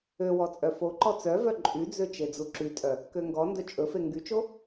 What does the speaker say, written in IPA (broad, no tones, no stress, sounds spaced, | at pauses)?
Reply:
ø w ɔ t͡sʼ œ f o ǃ ɔ t͡s œ v œ ǃʼ y d͡z ø t͡ʃ e d͡z u ǁ y tʼ œ | k ø ŋ ɡ ɔ n d ɵ t͡ʃʼ ɵ f e ŋ ɡ y t͡ʃ o